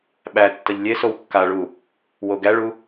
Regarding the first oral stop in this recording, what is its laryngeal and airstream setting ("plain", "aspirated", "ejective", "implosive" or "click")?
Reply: implosive